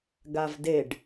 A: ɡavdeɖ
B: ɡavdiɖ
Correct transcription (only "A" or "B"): A